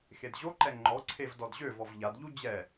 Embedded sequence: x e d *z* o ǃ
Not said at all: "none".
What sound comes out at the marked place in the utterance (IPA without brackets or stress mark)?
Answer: ʑ